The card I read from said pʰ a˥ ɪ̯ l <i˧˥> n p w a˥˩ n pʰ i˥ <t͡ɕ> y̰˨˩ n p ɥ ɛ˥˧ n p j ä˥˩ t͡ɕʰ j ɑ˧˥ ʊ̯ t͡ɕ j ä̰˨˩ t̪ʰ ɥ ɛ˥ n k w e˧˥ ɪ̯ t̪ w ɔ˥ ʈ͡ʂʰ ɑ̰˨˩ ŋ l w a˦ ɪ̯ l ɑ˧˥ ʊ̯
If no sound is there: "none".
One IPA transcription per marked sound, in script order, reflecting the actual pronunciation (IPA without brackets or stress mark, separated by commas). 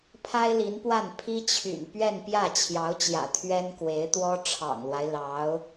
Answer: i˧˥, t͡ɕʰ